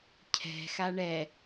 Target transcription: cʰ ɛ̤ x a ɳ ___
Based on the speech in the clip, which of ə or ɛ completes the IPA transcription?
ɛ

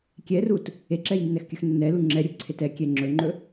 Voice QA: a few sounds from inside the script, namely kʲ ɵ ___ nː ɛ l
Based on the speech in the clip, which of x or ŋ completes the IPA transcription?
x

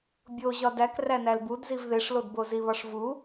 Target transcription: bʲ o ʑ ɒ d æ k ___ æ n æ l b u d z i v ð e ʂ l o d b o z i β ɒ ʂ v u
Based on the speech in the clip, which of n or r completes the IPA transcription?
r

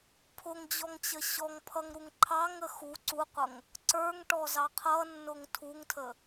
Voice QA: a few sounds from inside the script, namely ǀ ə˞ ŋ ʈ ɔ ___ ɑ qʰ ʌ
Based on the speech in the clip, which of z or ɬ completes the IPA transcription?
z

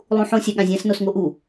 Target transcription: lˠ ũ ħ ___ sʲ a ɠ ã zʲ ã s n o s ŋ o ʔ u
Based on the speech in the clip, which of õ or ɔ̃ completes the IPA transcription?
õ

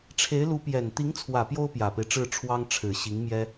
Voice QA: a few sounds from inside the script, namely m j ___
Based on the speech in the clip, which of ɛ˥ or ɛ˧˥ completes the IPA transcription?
ɛ˥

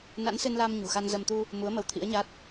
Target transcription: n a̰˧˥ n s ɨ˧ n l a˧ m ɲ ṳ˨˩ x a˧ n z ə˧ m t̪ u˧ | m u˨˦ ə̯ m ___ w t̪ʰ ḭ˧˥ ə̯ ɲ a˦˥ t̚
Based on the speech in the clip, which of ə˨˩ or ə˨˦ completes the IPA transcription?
ə˨˦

